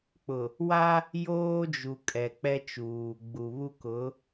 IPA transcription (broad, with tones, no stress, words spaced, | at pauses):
k͡pʊ˨ | wa˦ | joː˦d͡ʒu˨ kʼɛ˨ k͡pɛ˦t͡ʃuː˨ ɡ͡bu˨βu˦kʊ˨˦